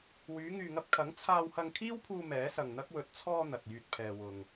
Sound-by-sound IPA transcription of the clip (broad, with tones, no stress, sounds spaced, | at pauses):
w yː˨˧ ŋ yː˨ ŋ ɐ˧ p̚ kʰ ɐ˨˥ ŋ t͡sʰ aː˧ w h ɐ˧ ŋ kʰ iː˥ w pʰ uː˧ m ɛː˨˥ s ɐ˨ ŋ n̪ ɐ˥ k̚ w ɵ˨ t̚ t͡sʰ ɔː˧ n̪ ɐ˨ t̚ j yː˧ t̚ pʰ ɛː˨ w ʊ˨ ŋ